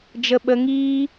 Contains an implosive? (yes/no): yes